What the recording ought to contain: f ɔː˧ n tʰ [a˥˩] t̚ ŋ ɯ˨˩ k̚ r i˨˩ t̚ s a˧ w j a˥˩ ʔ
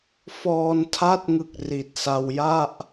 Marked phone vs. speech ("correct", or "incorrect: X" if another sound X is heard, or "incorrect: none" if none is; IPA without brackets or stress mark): incorrect: a˦˥